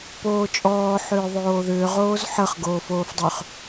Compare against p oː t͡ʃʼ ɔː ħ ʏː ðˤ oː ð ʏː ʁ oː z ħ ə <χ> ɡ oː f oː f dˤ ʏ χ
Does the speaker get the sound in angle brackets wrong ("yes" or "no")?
no